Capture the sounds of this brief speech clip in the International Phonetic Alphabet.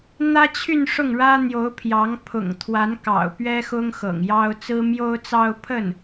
n̪ ä˥ t͡ɕʰ y˥˧ n ʂ ʊ˥˩ ŋ ɻ ä˥ n̪ j o˧˥ ʊ̯ pʰ j ɑ˧˥ ŋ pʰ ʊ̰˨˩ ŋ t̪ʰ w a˧˥ n k ɑ̰˨˩ ʊ̯ p ɥ ɛ˥ x ʊ˥ ŋ x ɤ̰˨˩ ŋ j ɑ˥ ʊ̯ t͡s ɹ̩˥ m j o˥ ʊ̯ t͡s ɑ˥ ʊ̯ pʰ ə˥˩ n

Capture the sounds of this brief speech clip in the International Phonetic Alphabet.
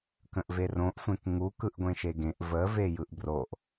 k ə̃ ʔ v e r õ ʔ sʷ ẽ k ŋ u k ɯ ʔ ɡʷ ẽ ʃ e ɡ ẽ ʔ v ə v e j ɯ ʔ b r o ʔ

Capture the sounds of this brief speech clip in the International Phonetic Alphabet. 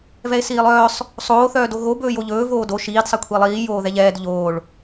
v ɛ e̯ s iː lˠ œː sˤ | sˤ oː θ œː d o ɣ o b ɵː j o ʎ ɵː v oː d o ʃ iː d sˤ ɛ kʷʰ i lˠ iː j oː ð ɛ ʎ ɛː d ʎ oː ɭ

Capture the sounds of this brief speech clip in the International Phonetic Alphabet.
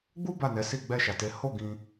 ɡ͡b u˦ b a˦˨ n ɛ˨˦ s i˦˨ ɡ͡b ɛ˧ ʃ a˨ t e˨˦ h o˦˨ ɡ ĩ˧

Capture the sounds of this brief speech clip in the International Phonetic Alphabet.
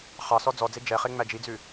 χ ɑ s ɔ d͡z ɔ d͡z e d͡ʒ ɛ χ e ŋ͡m æ d͡ʒ i d͡z ʉ

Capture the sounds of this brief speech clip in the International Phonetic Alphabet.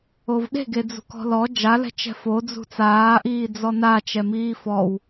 o v ɗ e̤ ɡ e d͡z ṳ k ɔ̤ l ɔ d͡ʒ a l ɛ̤ t͡ʃ ɛ̤ f o d͡z ṳ t͡s aː ʔ iː d͡z ɔ n a t͡ʃ ɛ m iː f ɔ w

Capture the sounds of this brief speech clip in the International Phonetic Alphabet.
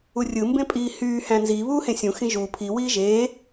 u rʲ ɯ m b ẽ pʼ iː h yː h æ̃ n z iː β uː h ẽ sʲ ũ x ĩ ʒ uː pʰ i w iː ʒ eː

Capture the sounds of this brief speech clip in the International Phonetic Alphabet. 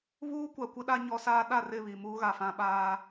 β uː˦ kʷ a˨ kʷ ɪ˦ ɗ a˦ ɲ ɔ˦ s aː˦ ɗ a˦˨ r ɪ˦˨ β i˨ m uː˦ ɣ a˨ f ã˦ ɓ aː˦

